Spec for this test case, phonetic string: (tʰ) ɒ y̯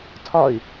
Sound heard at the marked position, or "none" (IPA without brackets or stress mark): tʰ